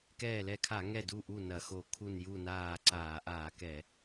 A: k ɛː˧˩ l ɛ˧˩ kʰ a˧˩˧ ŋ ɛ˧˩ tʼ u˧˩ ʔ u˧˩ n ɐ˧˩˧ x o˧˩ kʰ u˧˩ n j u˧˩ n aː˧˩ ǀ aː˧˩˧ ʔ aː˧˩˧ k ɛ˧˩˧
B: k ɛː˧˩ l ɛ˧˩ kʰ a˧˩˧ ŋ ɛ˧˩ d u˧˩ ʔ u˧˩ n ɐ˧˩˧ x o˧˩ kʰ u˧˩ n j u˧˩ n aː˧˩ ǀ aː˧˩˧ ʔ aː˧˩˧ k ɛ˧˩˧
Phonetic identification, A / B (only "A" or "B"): B